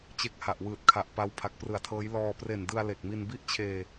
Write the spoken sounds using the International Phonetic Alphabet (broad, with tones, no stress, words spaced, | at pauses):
t͡ɕe˦˥k̚ha˨˩ʔwɯː˨˩t̚kʰa˨˩ʔ pa˦˥w pʰa˨˩k̚prɯ˨˩a̯tʰɤː˦˥j lɔː˧ pre˨˩ndɯ˧a̯ le˨˩k̚mi˧n bi˥˩ʔt͡ɕʰeː˧